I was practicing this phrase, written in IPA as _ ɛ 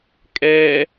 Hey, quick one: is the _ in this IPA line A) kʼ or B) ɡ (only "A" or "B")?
A